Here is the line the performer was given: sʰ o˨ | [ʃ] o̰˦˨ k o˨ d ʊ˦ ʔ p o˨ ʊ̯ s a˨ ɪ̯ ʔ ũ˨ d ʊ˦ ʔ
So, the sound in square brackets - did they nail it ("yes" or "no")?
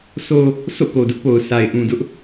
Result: no